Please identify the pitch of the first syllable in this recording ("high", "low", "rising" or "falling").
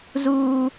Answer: high